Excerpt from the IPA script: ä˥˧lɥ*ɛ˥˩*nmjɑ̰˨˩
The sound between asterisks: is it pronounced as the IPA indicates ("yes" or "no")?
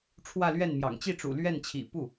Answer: yes